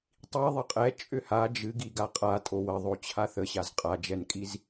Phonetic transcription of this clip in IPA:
tˤ i ðˤ ə qʼ ɛ t͡ʃʼ ʏ h a d͡ʒ ɨ ɡ i ɡ a qʼ a tʼ o w ə ðˤ o t͡ɕʰ a θ ə ɕ a z qʼ a d͡ʒ ɛ n kʼ i z

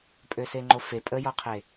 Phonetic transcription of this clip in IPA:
pʼ ø s e ŋ͡ǃ o f e pʼ ə j ɔ qʰ e

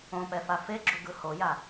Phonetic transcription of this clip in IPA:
õ p ɛ f a f e ɡ͡ǁ u ɡ ɯ h o j a

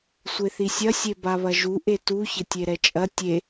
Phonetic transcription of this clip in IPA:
sʷ e θ i sʲ ɐ sʲ e b a β ɐ ʒ u ʔ e t u ç ɘ tʲ e ɾ ɛ t͡ʃʼ ɐ tʲ e

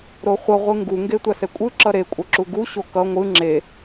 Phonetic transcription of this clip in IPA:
ɾ o χʷ ʌ ʁʷ ɯ ŋ ɡ u ŋ ɡ e tʷ a s ɛ kʷʼ ɯ ǁ ʌ ɾ e kʷʼ ʌ ǁ u ɡ u ɕ o k ʌ ŋʷ ɯ ŋ͡ǁ e

